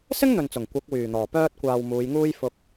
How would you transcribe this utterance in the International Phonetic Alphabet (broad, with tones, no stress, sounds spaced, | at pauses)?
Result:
s ɪ˥ ŋ n̪ ɵ˨ n t͡s ʊ˨˩ ŋ kʷ ɐ˨˥ k̚ w yː˨˩ n̪ ɔː˨˩ p œː˧ t̚ kʷ aː˨ w m uː˨˧ j ŋ uː˥ j f ʊ˧ k̚